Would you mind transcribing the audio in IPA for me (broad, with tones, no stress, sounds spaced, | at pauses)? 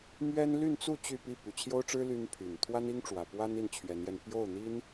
m ɥ ɛ˥ n l y˥˧ n t͡s u˥˧ t͡ɕ y˥˧ p i˥˩ p y˨˩ t͡ɕʰ j o˥ ʊ̯ ʈ͡ʂ ɻ̩˥ l y˥ n pʰ y˨˩ n t̪ʰ w a˥ n i˥ ŋ ʈ͡ʂ w ä˨˩ p w a˥ n i˥˩ n t͡ɕʰ ɥ ɛ˧˥ n j ɛ˧ n p j o˥˩ ʊ̯ n̪ i˥ n